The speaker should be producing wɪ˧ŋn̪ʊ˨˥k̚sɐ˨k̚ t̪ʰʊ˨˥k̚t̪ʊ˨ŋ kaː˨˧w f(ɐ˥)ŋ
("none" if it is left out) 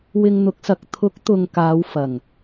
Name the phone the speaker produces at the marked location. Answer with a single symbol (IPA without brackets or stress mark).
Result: ɐ˨˩